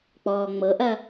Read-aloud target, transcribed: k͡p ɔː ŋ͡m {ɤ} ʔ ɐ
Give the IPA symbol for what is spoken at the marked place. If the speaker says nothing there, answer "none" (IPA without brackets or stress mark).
ɤ